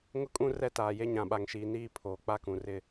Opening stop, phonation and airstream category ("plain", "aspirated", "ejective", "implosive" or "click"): ejective